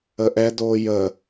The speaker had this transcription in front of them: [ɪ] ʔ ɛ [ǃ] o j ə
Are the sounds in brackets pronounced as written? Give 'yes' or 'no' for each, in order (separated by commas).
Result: no, no